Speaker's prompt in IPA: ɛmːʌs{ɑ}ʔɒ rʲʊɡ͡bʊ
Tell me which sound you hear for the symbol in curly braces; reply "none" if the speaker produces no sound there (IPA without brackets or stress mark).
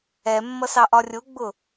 ɑ